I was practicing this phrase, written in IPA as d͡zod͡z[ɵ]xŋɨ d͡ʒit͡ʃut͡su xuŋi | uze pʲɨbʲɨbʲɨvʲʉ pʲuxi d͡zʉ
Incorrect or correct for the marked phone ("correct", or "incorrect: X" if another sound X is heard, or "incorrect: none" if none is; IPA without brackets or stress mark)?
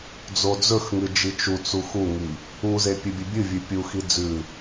correct